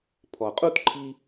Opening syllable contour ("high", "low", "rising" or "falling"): low